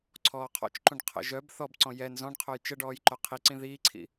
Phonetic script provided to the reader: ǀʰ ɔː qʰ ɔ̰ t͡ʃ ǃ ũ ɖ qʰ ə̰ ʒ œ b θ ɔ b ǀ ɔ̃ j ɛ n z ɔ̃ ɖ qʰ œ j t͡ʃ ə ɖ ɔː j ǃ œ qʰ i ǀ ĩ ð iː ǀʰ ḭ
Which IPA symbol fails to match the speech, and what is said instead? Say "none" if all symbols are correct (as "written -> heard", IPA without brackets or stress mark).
none